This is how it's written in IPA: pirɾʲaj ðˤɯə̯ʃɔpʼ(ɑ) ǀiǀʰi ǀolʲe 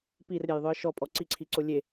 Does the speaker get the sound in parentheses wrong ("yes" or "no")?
yes